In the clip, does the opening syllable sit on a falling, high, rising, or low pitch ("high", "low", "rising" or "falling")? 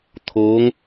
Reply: rising